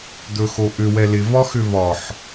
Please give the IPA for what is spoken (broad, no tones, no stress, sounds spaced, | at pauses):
d̪ ɵ x o ʔ ʏ w ɛ l ɪ v ɒ x ʏ v ɒ ħ